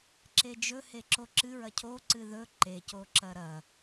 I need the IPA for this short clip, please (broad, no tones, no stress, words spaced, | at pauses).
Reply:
ǁed͡ʒɵ heǁoǁɨɹɐ cʰoǀɨ ðɵ ǃecoǁɐ ɾɐ